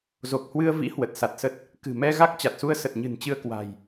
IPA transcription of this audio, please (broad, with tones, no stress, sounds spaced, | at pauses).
z o˨˩ k̚ h w ɨ˧ ə̯ v ḭ˧˥ h w ə˨˩ t̚ s a˨˩ t̚ s ə˦˥ t̚ | k ɨ̤˨˩ m ɛ˧ ɣ a˦˥ k̚ t͡ɕ a˨˩ t̚ s u˧ ə̯ s ə˨˩ t̚ ɲ ɨ̤˨˩ n t͡ɕ ɨ˧ ə̯ k w a̤˨˩ j